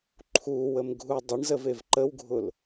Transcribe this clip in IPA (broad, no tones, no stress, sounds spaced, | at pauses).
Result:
ǃʰ u w ə m ɡʱ u dˤ ɪ ɳ z ə v e v ǃ ə w ɡʱ ʊ l